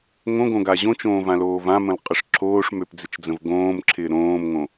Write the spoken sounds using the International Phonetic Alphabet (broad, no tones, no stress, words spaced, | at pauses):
ŋõɡõɡa ʑõt͡ʃõːvãloːv ãmə̃lqʼəʂ ǁʰoːʂmøpd͡zɪt͡ʃd͡zə̃v ɡõːmǁʰɪː ɾõːmŋõ